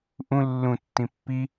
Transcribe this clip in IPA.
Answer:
ʔ ũ lː ũ tː ĩ pː i

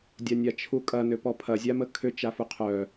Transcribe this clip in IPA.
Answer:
dʲ a nʲ a t͡ʃʰ u kʼ ɐ n ʏ p ɔ pʰ ɐ zʲ a m ə kʰ ʏ t͡ʃ a f u qʰ œ

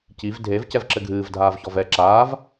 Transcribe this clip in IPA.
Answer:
c i v dʱ e v c ɛ v ǁ ɘ ɡʱ ɨː v dʱ aː v ç ɔ v ɛ ǁ aː v

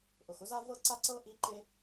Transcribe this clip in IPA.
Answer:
ʔ ʊ˩ x ʊ˥ z a˥ v ɤ˥ ǀ a˥ ǀ ɤ˥ ʔ i˧ ǃ e˧

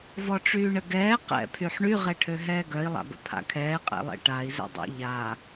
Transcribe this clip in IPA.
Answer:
v ɔ ʈ͡ʂ yː ɳ ə ɡ ɛː q ɛ̰ pʰ y ħ ɳ y ʁ ɛ ʈʰ ø ɦ ɛː ɡ œ i̯ lˠ a̰ b ə̰ pʰ a̰ kʰ ɛː qʼ ɛ̰ lˠ ɛ̰ ʈ a i̯ z ɛ̰ dˤ ɛ̰ ʎ a

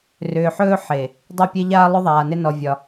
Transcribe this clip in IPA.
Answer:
r ʏː˨ ħ ɵː˦ ħ e˨ | dˤ ɪ˦˨ pʲ e˦ ʎ aː˦ lˠ ʏ˦ ðˤ aː˨ n ɪ˦ n ɔ˦ vʲ ɒ˦

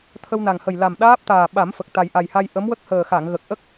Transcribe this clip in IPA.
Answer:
t̪ʰ ə˧ w n a˨˩ ŋ h ə˨˩ j l a˨˩ m ɗ aː˦˥ p̚ t̪ aː˨˩ ɓ a˨˩˦ m f ə˨˩ k̚ t̪ a˨˩ j ʔ a˨˩ j h a˧ j ʔ ə˧˥ m w ə˦˥ k̚ h əː˨˩ x a˨˩˨ ŋ ɣ ə˨˩ k̚ ʔ ə˦˥ k̚

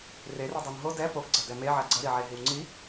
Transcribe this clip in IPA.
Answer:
r e r i dˤ o n ɦ o d ɛ p o ɡ ɡ͡ǀ ɐ d ɛ m e ʕ ɐ ɡ͡ǀ ɐ ɾ i ʕ e ɦ i w ŋ͡ǀ i

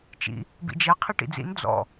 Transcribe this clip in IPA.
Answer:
t͡ʃ ḭ | b ḭ d͡ʒ ɛ qʰ i ʈ ḭ d͡z ḭ n d͡z ɔ̰

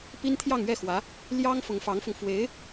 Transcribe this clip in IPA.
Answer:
p i˥ n t̪ʰ j ɑ˥˧ ŋ ɥ ɛ˥˩ x w ä˧˥ | l j ɑ˥ ŋ f ʊ˧˥ ŋ f ɑ˧˥ ŋ f ʊ˧ ŋ f w e˧˥ ɪ̯

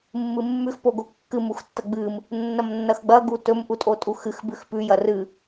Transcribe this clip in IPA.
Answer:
mː ɨ mː ʉ x p o ɡ o kː ɨ m u x tː ɐ ɡ͡b ɨ m | nː ɐ m nː ɐ x ɡ͡b ɐ ɡ u t ɵ m ʔ u tʼ o tʼ u x ɨ x b ʉ x p ʉ j ɐ r ɨ

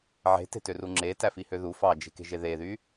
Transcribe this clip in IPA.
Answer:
ʕ e̤ t e̤ t ø r u ŋ͡ǁ e t æ f i h ø ð u f ɑ d͡ʒ e̤ k e̤ ʒ e ð e ð y

